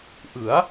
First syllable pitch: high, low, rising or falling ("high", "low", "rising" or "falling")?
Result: rising